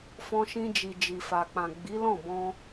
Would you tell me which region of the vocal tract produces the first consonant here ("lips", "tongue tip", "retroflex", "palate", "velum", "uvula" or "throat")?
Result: lips